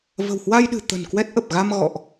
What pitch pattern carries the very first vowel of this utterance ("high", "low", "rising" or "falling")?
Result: low